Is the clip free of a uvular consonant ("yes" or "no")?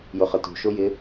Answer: no